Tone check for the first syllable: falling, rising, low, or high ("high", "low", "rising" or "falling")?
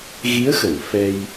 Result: rising